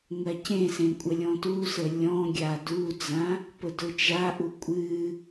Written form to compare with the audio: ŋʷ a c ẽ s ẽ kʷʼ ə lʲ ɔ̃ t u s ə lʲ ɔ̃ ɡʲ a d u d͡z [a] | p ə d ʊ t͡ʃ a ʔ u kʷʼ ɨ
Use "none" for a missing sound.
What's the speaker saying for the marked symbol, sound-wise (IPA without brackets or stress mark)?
ã